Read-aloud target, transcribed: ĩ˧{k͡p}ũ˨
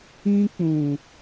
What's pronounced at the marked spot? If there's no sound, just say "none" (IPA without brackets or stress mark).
k͡p